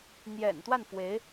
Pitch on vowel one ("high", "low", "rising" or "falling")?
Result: low